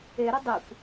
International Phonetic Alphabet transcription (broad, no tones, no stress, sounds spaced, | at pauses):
e ɾ ʏ dˤ e kʷ